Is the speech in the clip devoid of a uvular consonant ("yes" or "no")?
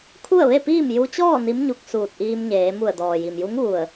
yes